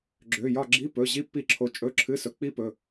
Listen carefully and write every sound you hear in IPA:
ɡ͡ǁ ø˩˧˩ j ɒ˦˨ ɡ͡ǁ i˧˥˧ p ɵ˩˧˩ ʑ i˦˥ pː i˦˨ ǁʰ o˨˦ t͡ʃʼ ɵ˧˥˧ ǁʰ ɨ˧˥˧ s ɵ˨˦ k͡p i˦˥ p ɵ˩˧˩

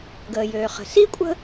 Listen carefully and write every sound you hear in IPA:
ɡ əː˩ j øː˩ χ ə̤˩ s i˥ kʷʼ ə̤˥

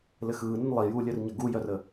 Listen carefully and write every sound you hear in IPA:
l ɘ x ɯː n ə n lˠ i j uː lʲ œ r ɲ ə ɡ u j œ r ə

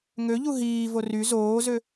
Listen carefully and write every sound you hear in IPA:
ŋ ø ʎ u ɦ iː v o r y z oː z ø

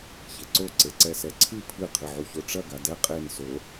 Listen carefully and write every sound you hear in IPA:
ç e ǀ o ǀ e ǀ ɛ s ɛ ǀʰ ɨ pʰ ɨ qʰ ɨ ʕ u ç o ʈ͡ʂ ɐ ɡ a d ɛ qʼ e n s o

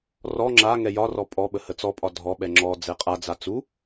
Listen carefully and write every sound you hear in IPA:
r ɔ ŋ͡ǁ a ŋ ɛ j ɒ r ɔ pʼ ɔ ɓ ə h ə t͡s ɔ pʼ ɒ dʱ ɔ ɓ ɛ ŋ͡ǁ ɔ d͡z ɛ qʼ a d͡z a t͡s u

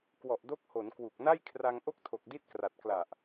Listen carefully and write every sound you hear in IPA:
k w ɔ˨˩ ʔ d o˦˥ k̚ h o˩˦ n k w u˨˩ k̚ n a˥˩ j kʰ r a˧ ŋ ʔ o˥˩ k̚ tʰ o˨˩ k̚ d i˦˥ t̚ k r a˨˩ t̚ k l a˨˩ ʔ

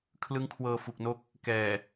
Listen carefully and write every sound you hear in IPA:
kʰ l ɯ˦˥ ŋ kʰ w ɤː˧ f u˨˩ k̚ n o˦˥ k̚ | k ɛː˨˩

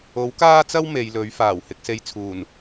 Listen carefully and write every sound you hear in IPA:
o˨˥ w k aː˥ t͡s ɐ˥ w m e˨˧ j l ɵ˨˥ ɥ f aː˨˩ w h ɪ˧ k̚ s e˧ j t͡sʰ uː˨˩ n

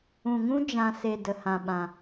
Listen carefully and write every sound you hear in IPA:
ũ˨ ŋ ũ˦ d͡ʒ ã˨ s e˨ d ə˨ h ã˨ ɓ ã˨

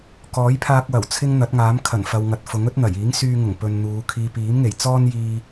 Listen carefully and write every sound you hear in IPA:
k ɔː˨˥ j pʰ aː˧ k̚ w ɐ˨˩ w t͡sʰ ɪ˥ ŋ n̪ ɐ˨˥ t̚ ŋ aː˨˥ m kʰ ɐ˨˩ n f ɐ˨ w ŋ ɐ˨ t̚ f ʊ˨˥ ŋ ɵ˥ t̚ n̪ ɐ˨˩ j iː˨˥ ŋ s yː˧ ŋ ʊ˨˩ ŋ p ɵ˨ n n̪ uː˨˧ kʰ iː˨ p iː˨˥ m ŋ e˨˩ j t͡s ɔː˥ n j iː˧

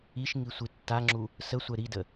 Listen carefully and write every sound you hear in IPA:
i ʃ ŋ i sʷ i tː a ŋ͡ǁ u | s ə sʷ ɛ ɾ i d ə

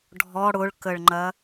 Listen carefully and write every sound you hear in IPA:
ɖʱ ɔ ɽ ʊ ɭ k ə ɭ ŋ͡ǃ ɐ

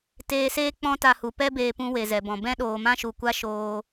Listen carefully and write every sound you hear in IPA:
t eː˧ s eː˦ k͡p ɔ̃˦ t a˧ h u˨ p ɛ˦ b eː˧ p ũ˧ w e˨ z ɛ˨ b ɔ̃˨ b ɛ̃˦ ɗ oː˨ m ã˦ ʃ u˨ kʷ a˦ ʃ oː˧

